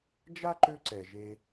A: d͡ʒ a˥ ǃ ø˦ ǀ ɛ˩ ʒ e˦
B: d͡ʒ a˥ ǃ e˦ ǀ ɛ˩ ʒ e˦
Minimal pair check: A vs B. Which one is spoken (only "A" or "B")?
A